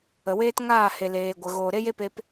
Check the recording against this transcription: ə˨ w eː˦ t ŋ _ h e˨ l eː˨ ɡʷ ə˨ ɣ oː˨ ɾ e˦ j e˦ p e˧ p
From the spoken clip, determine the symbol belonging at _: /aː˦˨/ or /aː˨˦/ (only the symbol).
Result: aː˦˨